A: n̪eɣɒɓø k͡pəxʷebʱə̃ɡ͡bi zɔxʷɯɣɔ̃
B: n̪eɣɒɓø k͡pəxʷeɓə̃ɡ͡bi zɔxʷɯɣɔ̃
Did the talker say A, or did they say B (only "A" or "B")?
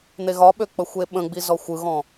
B